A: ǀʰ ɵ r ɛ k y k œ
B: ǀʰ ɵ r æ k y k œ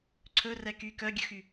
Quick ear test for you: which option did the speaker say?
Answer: A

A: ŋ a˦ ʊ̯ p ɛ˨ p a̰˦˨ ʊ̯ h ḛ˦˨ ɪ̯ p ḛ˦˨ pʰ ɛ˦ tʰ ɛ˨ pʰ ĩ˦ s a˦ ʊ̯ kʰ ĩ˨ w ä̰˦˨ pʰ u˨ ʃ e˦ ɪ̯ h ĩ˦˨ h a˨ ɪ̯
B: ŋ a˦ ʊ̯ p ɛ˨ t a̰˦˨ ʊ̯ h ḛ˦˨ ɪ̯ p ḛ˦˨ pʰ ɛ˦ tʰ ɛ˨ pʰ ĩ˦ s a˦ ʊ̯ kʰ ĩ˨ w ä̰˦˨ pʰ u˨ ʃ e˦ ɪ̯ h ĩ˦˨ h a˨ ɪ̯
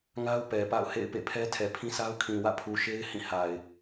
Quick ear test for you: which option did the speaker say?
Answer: A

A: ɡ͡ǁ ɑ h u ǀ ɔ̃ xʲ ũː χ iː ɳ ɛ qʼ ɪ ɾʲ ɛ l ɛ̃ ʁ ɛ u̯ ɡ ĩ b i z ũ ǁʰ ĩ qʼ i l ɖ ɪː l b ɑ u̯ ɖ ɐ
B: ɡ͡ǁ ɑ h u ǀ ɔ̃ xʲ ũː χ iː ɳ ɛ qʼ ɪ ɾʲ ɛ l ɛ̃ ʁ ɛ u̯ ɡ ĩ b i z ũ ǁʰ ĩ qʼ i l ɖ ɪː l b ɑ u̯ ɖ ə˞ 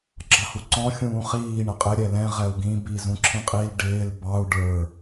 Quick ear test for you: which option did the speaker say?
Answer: B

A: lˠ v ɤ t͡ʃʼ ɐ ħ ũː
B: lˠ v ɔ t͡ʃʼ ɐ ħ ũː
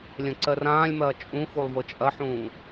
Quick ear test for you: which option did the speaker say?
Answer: A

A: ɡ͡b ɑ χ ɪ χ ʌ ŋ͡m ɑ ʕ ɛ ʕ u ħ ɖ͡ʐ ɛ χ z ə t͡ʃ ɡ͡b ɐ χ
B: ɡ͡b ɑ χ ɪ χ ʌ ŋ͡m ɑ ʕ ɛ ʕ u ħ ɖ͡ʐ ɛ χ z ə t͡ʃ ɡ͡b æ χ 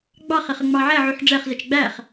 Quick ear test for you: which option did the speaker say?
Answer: B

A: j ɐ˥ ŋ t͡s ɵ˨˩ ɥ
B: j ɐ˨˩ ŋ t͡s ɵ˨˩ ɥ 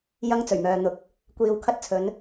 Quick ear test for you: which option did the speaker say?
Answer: A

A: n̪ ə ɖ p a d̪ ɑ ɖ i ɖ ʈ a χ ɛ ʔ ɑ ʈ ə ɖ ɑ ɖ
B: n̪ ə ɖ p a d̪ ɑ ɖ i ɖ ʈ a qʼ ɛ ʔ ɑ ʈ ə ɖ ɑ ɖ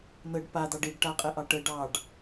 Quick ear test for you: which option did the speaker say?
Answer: B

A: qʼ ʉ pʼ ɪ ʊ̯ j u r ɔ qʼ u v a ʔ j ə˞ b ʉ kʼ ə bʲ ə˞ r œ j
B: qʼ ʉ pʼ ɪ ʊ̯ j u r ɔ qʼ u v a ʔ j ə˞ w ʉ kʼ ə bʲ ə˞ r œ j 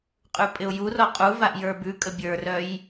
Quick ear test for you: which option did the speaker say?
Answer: A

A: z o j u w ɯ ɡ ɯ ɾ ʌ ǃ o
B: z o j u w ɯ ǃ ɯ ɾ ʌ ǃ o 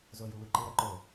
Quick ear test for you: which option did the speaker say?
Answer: B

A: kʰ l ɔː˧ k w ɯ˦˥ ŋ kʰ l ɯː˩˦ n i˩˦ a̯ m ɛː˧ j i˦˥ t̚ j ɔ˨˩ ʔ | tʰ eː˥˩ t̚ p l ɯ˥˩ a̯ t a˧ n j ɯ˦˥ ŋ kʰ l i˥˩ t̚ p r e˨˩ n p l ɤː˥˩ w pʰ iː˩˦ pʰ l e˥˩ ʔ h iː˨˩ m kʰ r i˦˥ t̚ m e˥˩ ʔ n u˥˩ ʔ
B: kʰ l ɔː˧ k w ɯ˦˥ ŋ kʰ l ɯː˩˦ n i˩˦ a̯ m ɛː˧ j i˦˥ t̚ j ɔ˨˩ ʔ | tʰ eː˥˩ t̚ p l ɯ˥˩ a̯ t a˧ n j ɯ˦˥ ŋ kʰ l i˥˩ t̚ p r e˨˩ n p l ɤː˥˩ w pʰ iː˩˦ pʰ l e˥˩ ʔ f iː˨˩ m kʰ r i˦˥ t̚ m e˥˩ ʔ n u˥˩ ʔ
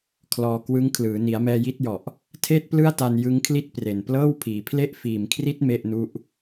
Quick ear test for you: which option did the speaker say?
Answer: B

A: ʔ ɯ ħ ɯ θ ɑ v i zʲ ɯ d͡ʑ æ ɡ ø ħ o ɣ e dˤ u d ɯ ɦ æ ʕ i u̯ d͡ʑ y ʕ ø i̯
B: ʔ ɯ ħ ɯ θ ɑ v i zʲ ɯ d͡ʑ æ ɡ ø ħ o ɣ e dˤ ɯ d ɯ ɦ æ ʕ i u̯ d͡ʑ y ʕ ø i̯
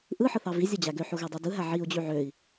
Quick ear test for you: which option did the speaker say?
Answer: A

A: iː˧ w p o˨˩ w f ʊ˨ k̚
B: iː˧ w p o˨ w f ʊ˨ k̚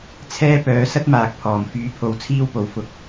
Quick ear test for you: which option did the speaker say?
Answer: A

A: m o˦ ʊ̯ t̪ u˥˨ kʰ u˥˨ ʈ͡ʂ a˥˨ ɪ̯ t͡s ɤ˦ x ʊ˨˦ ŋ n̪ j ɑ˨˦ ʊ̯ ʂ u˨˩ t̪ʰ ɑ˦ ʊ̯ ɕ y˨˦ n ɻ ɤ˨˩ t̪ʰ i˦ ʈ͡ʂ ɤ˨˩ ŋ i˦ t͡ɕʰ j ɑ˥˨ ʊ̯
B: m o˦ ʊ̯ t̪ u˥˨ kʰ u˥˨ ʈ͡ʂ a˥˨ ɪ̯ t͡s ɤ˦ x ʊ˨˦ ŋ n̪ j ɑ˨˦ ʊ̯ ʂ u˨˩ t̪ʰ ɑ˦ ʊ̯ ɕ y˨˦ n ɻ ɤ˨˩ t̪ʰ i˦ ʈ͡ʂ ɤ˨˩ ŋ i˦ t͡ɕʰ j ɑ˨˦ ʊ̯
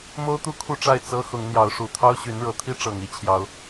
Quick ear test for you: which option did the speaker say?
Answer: B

